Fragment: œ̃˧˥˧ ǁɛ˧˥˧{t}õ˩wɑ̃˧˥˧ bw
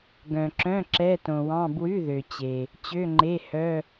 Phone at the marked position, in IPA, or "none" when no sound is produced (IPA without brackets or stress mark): t